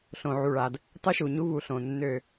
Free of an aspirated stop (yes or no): yes